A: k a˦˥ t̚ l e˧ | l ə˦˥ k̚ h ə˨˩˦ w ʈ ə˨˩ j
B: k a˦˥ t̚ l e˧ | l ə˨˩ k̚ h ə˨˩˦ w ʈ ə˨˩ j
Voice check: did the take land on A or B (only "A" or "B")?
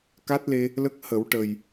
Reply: A